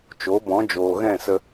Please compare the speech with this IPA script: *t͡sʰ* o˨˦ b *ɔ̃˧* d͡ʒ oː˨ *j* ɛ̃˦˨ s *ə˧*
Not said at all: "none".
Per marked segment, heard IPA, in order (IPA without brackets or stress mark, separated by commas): t͡ʃ, ɔ̃˨˦, ɣ, ə˧